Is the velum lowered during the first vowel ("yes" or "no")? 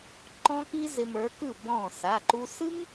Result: yes